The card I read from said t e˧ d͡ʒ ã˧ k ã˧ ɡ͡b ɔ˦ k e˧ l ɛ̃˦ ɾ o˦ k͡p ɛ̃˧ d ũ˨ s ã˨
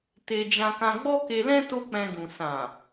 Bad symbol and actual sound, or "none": ɾ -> t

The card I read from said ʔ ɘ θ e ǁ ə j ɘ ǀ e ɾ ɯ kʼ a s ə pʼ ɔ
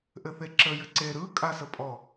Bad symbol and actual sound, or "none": none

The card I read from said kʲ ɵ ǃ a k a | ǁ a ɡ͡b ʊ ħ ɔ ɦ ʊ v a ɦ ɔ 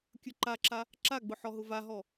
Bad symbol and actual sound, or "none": k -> ǁ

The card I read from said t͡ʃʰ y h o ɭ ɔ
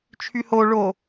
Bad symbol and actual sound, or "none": ɔ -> o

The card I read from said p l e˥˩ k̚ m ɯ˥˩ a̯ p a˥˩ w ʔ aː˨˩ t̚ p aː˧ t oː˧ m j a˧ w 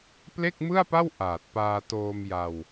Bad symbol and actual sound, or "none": none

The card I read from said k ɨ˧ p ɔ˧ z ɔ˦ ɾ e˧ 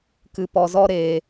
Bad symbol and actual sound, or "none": none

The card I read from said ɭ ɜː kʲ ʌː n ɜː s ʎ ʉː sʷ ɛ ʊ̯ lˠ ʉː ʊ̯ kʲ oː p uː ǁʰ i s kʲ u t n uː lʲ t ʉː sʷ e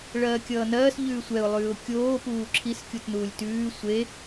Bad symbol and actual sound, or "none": none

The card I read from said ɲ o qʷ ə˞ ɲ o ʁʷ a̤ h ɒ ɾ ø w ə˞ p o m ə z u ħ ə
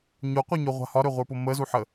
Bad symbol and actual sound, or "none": w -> ʁʷ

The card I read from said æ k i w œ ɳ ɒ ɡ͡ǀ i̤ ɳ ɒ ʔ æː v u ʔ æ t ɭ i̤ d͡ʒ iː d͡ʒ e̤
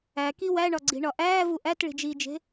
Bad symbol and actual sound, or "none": œ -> æ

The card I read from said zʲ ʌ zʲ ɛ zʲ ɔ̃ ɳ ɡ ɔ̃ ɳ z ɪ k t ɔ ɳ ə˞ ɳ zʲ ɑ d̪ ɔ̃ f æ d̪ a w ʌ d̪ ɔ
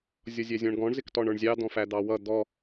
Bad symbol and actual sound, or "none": a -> ɑ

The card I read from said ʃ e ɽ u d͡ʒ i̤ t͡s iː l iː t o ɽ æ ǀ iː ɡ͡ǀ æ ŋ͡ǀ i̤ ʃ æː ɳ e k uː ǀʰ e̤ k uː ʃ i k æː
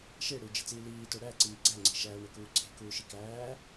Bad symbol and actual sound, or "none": none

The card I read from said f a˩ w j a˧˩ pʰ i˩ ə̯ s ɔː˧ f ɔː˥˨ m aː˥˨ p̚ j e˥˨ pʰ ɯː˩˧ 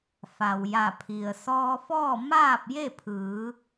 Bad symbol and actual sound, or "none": none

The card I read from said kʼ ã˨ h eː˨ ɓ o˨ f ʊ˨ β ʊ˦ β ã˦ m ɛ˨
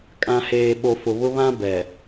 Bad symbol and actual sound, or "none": m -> b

